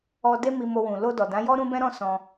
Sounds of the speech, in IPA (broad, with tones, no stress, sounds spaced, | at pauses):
ɔ˧ d e˦ m i˧ m o˧ w ũ˨ l o˧ d ɔ˨ d ã˨˦ j ɔ˦ ɾ ũ˦ b ɛ̃˦ ɾ ɔ̃˦ s ɔ̃˧